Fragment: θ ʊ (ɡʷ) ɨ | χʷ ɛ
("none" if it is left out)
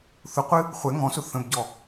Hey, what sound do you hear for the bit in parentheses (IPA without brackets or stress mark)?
qʷ